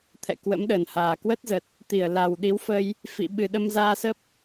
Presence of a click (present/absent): absent